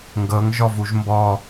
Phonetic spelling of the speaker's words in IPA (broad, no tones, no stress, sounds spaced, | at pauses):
ŋ ɡ ɤ ŋ ʒ ɔ v u ʒ m b ɔ